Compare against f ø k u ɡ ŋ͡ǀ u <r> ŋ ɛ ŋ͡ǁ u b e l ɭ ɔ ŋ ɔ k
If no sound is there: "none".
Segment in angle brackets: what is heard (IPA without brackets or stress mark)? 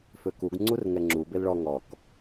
r